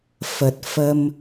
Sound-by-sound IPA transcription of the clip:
f ə˨˩ t̚ f ə˧ m

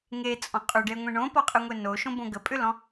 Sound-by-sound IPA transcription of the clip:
ŋ e t͡sʼ ɔ̃ qʼ ʏ ɖ e ŋʷ ẽ ɳ õ p ɔ qʼ ɯ ŋʷ e n o ʃ õ b õ ɡ ə pʼ ʏ l ɔ̃

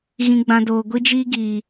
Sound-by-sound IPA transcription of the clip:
ɣ ĩ˨ ɡ͡b ã˨ d oː˨ ɡʷ i˦ d͡ʒ iː˦ ɡ i˨

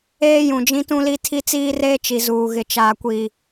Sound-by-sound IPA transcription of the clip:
eː˦ j ũ˨ d͡ʒ ĩ˦ t ũ˦ l i˦ tʰ i˦ t͡s iː˦ r eː˦ t͡ʃ i˨ z uː˨ ɣ ɪ˨ t͡ʃ aː˨ kʷ i˨

